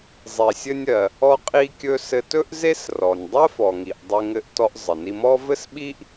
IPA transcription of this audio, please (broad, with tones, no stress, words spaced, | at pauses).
zˤi˩sʲɘ˧nʲɜ˩ | ɔ˧qʼi˧kʲɵ˧ sɘ˧tɵ˥ʔze˥srɔ˩nʲ dˤɜ˥fɔ˩ŋi˩ʔ dˤe˧ŋɘ˧ʔtɔ˧ʔ zˤɘ˩ni˧mɔ˥ vɘ˥sɓi˥ʔ